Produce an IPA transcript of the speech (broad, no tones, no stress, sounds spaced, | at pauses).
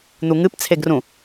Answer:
n̪ u ŋ ɨ p t͡sʰ e ɡ r ũ